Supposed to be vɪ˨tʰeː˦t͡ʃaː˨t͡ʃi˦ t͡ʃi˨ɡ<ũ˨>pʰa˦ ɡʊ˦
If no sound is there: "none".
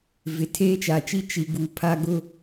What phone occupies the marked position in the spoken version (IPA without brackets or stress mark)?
u˨